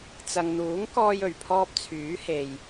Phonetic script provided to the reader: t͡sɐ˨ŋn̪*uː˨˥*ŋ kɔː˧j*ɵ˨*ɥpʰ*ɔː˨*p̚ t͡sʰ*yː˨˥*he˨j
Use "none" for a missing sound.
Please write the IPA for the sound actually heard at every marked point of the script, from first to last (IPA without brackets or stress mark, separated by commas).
uː˨˥, ɵ˨˩, ɔː˧, yː˨˥